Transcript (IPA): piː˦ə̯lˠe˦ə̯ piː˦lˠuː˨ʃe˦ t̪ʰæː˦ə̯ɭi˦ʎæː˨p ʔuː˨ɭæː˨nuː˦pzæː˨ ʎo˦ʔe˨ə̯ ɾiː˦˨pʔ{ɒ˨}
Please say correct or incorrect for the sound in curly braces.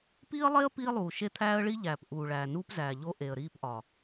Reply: correct